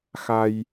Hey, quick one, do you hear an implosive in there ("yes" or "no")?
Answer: no